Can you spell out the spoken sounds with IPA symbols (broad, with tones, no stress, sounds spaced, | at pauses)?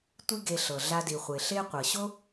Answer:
tʷ i˥ ɡ e˧ ɬ ɤ˩ ɮ a˧ d i˩ χʷ e˩ ɬ e˥ qʷ ɤ˩ ɕ o˥